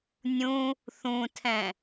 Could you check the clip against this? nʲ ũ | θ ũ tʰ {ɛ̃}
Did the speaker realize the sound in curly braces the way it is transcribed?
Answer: yes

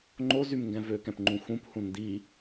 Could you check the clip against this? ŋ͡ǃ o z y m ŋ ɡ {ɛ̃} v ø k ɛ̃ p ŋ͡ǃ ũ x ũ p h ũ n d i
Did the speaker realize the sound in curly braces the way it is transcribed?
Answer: yes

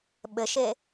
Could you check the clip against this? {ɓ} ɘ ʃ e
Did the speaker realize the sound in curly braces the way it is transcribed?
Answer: yes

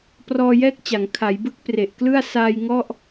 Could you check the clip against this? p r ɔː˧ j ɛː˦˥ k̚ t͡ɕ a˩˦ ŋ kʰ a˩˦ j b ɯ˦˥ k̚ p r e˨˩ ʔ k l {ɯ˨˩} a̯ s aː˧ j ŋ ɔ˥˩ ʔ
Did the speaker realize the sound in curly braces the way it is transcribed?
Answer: no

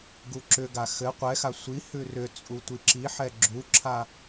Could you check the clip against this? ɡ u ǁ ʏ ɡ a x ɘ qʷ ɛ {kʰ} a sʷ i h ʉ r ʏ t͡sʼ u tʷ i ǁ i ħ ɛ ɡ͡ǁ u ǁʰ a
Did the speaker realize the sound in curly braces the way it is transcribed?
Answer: no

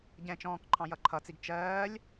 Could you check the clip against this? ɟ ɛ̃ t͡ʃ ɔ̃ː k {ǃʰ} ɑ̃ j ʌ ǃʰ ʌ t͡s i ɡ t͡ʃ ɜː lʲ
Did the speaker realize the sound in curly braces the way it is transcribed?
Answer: yes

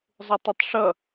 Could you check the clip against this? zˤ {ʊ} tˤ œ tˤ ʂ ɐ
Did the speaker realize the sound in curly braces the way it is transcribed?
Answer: yes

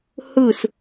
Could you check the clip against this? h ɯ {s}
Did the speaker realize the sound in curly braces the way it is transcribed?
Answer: yes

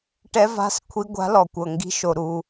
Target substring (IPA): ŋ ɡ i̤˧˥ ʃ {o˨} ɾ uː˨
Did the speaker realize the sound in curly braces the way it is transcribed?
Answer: yes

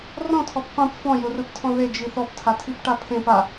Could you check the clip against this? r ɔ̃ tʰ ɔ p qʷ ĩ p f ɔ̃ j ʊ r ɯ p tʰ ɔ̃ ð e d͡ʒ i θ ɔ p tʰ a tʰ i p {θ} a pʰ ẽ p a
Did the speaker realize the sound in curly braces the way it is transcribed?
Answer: no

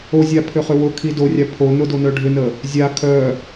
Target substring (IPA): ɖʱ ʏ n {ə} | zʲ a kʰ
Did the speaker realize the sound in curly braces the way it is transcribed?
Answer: yes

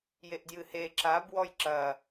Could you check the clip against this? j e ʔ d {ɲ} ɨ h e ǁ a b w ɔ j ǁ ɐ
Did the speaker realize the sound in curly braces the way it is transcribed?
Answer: no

